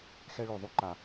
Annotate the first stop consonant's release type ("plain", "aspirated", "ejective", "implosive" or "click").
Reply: click